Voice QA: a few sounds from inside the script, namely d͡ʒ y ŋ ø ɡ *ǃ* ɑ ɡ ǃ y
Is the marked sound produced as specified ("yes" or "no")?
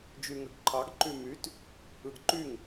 no